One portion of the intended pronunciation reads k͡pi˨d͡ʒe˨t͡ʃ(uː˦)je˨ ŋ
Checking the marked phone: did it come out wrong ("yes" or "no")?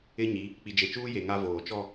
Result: no